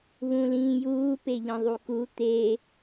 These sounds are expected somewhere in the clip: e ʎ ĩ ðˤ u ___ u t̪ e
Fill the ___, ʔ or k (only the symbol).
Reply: k